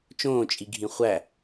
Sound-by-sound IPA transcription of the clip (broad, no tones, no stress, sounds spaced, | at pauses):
t͡ʃ õː t͡ʃʼ i ɡʱ ĩ χʷ æ